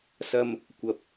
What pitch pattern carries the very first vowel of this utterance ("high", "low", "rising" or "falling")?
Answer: low